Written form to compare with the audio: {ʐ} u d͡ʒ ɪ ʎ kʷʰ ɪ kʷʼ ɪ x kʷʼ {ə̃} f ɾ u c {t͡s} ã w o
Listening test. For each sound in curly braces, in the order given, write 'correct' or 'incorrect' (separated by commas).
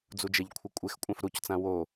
incorrect, incorrect, correct